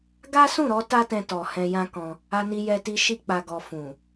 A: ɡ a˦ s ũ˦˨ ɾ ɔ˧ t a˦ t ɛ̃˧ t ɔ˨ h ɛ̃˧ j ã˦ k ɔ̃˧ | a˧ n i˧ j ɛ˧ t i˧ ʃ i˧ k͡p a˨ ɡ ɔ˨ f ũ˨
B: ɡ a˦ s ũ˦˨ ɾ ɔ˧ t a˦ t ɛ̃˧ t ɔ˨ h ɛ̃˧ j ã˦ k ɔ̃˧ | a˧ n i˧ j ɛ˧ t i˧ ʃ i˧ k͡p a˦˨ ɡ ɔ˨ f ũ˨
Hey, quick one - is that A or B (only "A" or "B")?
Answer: A